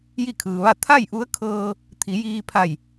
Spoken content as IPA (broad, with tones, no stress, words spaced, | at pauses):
ji˥˨kʰɯː˩ʋa˥˨ t̪ʰa˥˨jʔu˧˥ə̯ kʰɤː˧ | t̪ʰi˩˧jiː˧ pʰa˧˩j